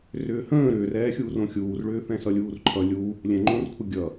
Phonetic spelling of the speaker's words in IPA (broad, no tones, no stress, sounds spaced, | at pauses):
r ʏː h ə̃ː ɾ ʏː r ɛː xʲ uː r õ xʲ uː r ɭ ʏː f ɛ̃ s ʌ lʲ uː r ǃʰ ʌ lʲ u | lʲ ɛ̃ ŋ͡ǃ õ r kʷʰ ə ɡʲ ʌ